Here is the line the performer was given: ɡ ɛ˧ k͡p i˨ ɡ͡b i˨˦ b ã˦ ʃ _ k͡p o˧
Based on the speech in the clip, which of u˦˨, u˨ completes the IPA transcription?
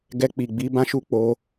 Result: u˦˨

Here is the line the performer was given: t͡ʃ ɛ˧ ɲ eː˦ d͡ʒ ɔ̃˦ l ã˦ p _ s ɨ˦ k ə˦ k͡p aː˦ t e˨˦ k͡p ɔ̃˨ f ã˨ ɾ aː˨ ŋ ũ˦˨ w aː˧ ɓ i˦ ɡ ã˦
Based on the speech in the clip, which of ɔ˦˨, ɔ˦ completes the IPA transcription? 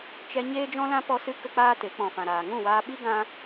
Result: ɔ˦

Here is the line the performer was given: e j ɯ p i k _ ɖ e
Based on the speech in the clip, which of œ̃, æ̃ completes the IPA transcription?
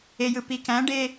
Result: æ̃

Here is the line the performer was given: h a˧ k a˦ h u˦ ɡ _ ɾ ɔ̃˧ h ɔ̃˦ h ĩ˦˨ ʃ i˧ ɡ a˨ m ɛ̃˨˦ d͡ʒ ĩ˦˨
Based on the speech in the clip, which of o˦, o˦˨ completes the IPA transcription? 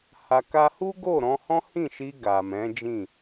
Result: o˦˨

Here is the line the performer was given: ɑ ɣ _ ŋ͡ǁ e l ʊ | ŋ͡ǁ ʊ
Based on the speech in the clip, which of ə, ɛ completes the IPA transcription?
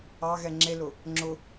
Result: ɛ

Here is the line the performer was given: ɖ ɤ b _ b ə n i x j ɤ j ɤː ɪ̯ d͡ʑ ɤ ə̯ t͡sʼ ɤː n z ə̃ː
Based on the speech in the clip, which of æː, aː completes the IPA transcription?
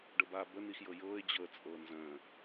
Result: aː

